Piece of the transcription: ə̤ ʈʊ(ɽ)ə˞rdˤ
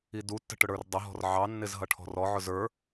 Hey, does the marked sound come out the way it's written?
yes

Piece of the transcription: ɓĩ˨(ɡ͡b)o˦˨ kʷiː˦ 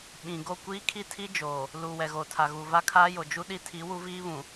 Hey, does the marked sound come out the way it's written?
no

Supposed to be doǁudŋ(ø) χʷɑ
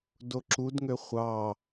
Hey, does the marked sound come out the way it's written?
yes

